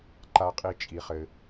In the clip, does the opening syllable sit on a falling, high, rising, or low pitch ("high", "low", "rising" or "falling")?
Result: low